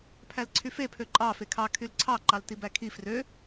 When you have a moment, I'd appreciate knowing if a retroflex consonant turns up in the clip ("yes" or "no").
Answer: no